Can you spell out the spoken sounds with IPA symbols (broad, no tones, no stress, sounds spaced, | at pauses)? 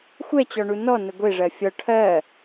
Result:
xʷ ɛ t͡ɕ ɔ ɳ u n ɔ n ə ɡʷ e ʐ ɜ fʲ ɔ ʈʰ ɜ